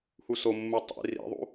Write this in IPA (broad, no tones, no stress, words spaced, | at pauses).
husomːu tˤḭ rḭðˤṵ